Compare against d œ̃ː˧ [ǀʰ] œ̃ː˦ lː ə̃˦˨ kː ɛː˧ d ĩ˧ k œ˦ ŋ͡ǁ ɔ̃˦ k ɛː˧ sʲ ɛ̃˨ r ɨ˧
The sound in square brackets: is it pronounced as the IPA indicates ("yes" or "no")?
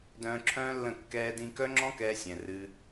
no